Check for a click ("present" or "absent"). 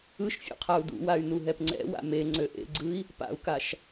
present